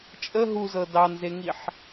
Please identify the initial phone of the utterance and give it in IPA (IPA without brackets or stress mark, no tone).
t͡ʃʼ